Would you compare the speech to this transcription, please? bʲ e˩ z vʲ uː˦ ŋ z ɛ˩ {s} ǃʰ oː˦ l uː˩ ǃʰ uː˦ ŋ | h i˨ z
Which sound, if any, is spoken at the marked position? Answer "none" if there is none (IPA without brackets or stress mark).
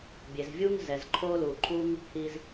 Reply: z